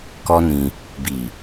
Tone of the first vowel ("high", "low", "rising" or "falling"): high